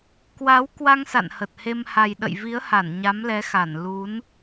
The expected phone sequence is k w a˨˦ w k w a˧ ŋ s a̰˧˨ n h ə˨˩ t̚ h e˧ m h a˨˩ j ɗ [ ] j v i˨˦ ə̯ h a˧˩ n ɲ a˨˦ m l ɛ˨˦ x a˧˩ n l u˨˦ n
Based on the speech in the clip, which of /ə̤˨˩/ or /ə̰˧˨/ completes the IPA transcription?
ə̰˧˨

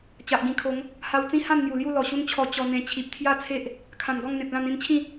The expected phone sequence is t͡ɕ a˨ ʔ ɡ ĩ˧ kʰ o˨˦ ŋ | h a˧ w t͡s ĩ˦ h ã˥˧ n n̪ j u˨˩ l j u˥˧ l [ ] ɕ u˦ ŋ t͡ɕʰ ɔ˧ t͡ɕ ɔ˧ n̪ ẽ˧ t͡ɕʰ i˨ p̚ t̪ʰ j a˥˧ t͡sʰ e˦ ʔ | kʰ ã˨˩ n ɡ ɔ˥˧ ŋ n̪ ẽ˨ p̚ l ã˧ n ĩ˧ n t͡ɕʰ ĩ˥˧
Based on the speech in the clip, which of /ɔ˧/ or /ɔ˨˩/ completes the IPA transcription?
ɔ˨˩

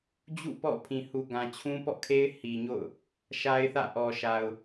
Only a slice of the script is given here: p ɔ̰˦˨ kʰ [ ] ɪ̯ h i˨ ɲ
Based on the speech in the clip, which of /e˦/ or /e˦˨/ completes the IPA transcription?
e˦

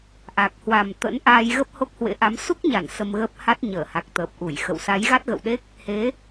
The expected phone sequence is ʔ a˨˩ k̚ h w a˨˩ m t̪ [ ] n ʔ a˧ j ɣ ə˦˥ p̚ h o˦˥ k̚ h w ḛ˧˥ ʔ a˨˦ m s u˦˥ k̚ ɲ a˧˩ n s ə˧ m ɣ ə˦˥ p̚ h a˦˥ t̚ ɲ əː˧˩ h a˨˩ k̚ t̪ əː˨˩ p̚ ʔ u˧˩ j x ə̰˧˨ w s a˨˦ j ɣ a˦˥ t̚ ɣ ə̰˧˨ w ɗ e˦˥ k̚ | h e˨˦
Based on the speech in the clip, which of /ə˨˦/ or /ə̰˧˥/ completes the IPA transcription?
ə̰˧˥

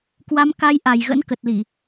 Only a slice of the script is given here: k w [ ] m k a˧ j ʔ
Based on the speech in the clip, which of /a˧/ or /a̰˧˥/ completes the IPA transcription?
a˧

